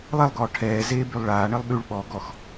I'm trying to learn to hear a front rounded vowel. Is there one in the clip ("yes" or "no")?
yes